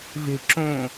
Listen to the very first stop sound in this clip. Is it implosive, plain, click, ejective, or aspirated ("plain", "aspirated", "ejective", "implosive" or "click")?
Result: click